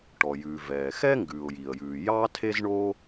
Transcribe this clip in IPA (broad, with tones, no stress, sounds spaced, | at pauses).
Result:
ʈ ɔ˩ j ʉː˩ v ɛː˩ x ɛ˥ ŋ ɡ ʉː˩ ʊ̯ j i˩ ə̯ j ʉː˩ j ɑ˥ tʰ e˥ z ɳ oː˥